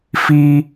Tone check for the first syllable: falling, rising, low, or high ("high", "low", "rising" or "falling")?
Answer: high